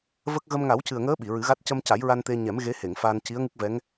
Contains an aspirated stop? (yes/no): no